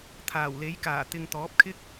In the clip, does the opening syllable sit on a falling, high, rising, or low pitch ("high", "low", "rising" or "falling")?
low